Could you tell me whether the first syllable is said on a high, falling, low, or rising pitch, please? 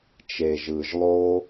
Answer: low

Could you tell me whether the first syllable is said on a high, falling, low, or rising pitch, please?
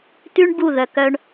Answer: high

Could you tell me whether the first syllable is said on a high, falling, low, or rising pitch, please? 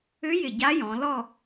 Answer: rising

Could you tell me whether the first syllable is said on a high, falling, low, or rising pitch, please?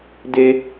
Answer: high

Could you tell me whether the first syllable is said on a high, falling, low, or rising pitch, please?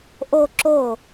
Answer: falling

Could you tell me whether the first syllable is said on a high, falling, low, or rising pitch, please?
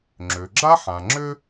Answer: low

